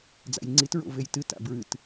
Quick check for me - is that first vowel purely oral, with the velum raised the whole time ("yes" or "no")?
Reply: yes